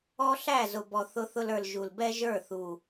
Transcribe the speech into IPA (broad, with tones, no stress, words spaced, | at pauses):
ɔ˦ɬæ˦˨zʊ˨ bɔ˨θʊ˧θʊ˧lə˞˨l ʒu˨lbɛ˦ʒə˞˦˨ θu˨